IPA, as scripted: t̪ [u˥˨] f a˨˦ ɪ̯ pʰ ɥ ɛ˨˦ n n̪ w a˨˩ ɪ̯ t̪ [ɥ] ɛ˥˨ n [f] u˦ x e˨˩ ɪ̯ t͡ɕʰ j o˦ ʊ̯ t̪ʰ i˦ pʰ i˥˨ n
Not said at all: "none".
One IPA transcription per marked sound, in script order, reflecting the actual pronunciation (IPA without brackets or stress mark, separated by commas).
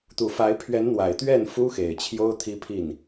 u˨˩, ɥ, f